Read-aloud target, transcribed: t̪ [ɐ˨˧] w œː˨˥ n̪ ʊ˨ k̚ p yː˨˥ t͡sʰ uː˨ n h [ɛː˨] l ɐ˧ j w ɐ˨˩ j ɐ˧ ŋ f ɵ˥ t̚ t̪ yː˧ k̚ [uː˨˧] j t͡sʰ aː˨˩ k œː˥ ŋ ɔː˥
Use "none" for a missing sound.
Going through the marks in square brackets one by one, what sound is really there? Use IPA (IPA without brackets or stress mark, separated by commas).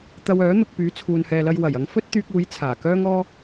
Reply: ɐ˧, ɛː˨, uː˨˧